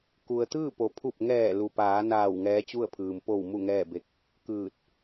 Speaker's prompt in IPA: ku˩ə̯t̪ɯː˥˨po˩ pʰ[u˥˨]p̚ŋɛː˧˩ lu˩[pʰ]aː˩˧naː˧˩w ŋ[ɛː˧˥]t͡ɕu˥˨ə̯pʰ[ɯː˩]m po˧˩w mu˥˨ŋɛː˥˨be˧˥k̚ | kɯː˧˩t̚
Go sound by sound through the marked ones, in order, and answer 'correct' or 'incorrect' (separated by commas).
incorrect, incorrect, correct, correct